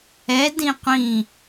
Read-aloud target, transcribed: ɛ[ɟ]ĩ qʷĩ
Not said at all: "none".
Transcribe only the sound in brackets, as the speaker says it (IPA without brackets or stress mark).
d